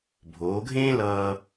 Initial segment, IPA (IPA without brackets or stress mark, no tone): bʱ